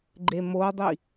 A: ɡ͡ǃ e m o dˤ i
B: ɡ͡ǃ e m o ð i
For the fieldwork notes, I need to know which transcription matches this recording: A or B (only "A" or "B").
A